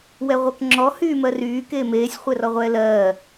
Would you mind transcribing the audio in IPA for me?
wɛʁʷɜkŋ͡ǁɔ hyːmɜryː keːmeːsʲ χʷɛrɔʁʷɛːlɜː

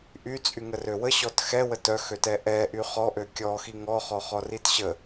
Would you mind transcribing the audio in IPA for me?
ʔy t͡sʼyŋərøwə ɕɔtxɛ wətœxøtɛ ʔɛ ʔyχɔʔø kʲɔxi ŋɔχɔ χɔritɕə

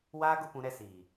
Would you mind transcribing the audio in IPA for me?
waː˦ɡʊ˦ pũ˦ɾɛ˦ siː˨

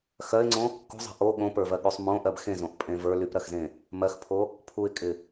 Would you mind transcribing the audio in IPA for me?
xɜɪ̯ŋ͡ǀõ | kṳzˤe̤ ʔo ɠõpə˞vɜɠysˤ mõʔɜb xẽzõʔpʼẽ və˞ lypɾɜxzẽ | mɜxpʰo | pʰuɪ̯kʼɪ

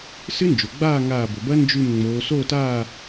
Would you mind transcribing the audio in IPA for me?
sɨ˦˥nd͡ʒo˩ ɡ͡baː˥˨ŋaː˧˩bɵ˩bɐ˦˥ nd͡ʒʉ˧˩m ŋ͡moː˩˧soː˥˨taː˥˨

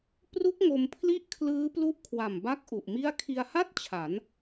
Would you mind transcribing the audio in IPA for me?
pru˦˥k̚ ŋo˧mpʰli˥˩ʔ kʰlɯː˦˥plu˦˥ʔkʰwa˨˩m ba˥˩k̚ʔu˨˩ʔmi˥˩a̯ kʰi˧a̯ha˥˩t̚ t͡ɕʰa˩˦n

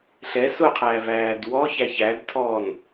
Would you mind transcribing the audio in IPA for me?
ɬɛ sʊqʰæːvæːd wɔçæ çædtʰɔːn

